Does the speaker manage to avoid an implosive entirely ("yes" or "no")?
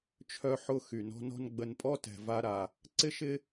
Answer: yes